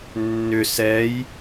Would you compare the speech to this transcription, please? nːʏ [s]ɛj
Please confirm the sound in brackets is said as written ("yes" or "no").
yes